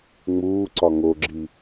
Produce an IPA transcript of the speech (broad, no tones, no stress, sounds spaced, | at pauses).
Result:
ŋ͡m uː ǀ ɒ ŋ o ɡ͡ǁ i